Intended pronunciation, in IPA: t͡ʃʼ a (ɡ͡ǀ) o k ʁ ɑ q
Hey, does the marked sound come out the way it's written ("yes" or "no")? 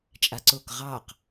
no